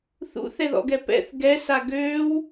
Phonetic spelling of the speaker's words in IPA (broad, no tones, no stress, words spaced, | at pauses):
θṵθɛðɔ̰ɡɛ pɛ̰θ ɡɛsa ɡøːw